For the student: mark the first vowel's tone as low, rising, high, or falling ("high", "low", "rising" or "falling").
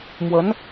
rising